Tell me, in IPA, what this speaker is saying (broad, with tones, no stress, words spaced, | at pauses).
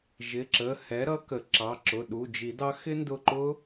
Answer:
ʒɪ˩˧˩ǁə˩˧˩ hɛ˨˥ ɾʌ˦˥kə˨˩˦ǁɑ˩˧˩ ǁʊ˩˧˩ɗu˩˧˩d͡ʒi˨˩˦dɑ˦˥ xɪ˦˥ndʊ˧˩ǃʊ˦˥